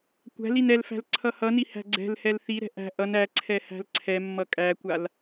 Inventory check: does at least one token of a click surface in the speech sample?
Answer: yes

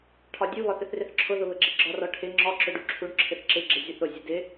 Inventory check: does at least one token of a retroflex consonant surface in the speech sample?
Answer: yes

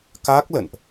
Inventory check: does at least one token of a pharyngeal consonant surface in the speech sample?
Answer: no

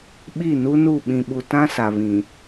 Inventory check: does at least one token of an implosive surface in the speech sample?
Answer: yes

